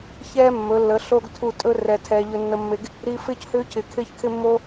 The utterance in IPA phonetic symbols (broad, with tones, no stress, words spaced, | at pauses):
çɛː˦mːɵ˨˦lːə˨˦ ɬo˦ɡ tʰu˦˨ tʼɵ˦ rɛ˧tʰɛː˧ ʎɵ˧nːə˧mːe˧ɡ | ɾi˦ fɪː˦chʏː˦ cʰɪː˧kʰɪː˦çkʰɪ˦mːo˦